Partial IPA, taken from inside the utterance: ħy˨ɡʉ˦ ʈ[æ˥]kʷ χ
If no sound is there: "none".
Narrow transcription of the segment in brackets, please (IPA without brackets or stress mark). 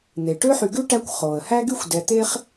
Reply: æ˥